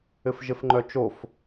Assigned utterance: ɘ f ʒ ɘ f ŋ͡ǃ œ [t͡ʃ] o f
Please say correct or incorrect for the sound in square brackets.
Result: correct